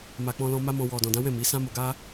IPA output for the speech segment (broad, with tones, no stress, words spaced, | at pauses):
ma˨k͡pɔ̃˧lɔ̃˧ ma˦mɔ̃˧ wɔ˨dɔ̃˨dã˨˦wɛ̃˦˨ mi˨˦ sã˦mo˧ɡa˦